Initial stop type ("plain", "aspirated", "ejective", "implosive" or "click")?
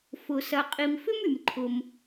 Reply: ejective